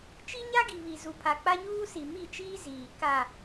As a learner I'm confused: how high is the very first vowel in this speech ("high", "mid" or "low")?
high